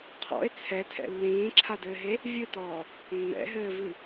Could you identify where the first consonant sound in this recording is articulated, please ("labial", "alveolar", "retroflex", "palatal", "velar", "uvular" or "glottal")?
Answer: uvular